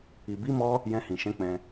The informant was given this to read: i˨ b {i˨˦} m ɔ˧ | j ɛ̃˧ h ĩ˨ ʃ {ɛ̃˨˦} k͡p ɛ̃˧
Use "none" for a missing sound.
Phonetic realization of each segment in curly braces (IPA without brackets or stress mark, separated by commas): i˨˦, ɛ̃˨˦